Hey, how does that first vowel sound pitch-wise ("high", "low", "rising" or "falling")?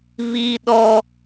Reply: high